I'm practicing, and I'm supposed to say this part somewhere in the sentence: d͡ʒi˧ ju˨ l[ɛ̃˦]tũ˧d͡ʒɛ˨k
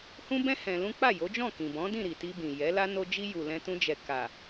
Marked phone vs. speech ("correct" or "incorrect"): incorrect